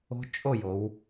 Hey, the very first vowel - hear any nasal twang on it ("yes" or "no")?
no